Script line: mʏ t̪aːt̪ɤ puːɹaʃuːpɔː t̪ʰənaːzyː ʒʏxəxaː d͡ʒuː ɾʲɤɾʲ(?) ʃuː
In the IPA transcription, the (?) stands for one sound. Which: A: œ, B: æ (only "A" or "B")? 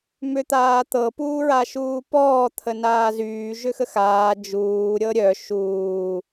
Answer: A